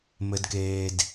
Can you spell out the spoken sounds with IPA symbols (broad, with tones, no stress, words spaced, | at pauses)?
mɘ˨dkeː˨d